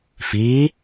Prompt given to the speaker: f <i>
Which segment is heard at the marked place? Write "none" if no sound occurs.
iː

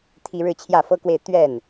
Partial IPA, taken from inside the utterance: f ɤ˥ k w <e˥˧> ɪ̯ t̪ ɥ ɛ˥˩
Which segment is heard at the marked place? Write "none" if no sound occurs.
e˥˧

